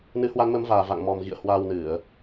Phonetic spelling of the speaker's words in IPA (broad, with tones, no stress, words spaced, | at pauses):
nɨ˨˦hwa˨˦nmə˨˦mvaː˨˩ va̰˧˨ŋmɔ˨˩mɣḭ˧˨ə̯ hwaː˧wnɨ˧˩˨ə̯